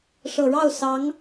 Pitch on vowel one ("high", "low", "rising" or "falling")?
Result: low